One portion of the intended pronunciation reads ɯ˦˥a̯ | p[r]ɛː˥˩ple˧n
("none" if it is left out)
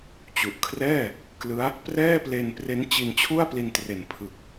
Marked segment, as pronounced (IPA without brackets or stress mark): r